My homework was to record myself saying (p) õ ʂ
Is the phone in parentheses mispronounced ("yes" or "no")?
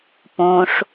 no